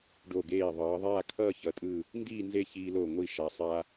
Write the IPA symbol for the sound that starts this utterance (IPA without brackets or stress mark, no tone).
ɖ